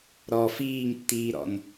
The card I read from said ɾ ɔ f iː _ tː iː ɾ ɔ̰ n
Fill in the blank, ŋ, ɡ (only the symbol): ŋ